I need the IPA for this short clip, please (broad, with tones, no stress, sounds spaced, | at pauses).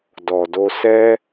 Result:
d ɔ˨ d o˧ s ɛ˦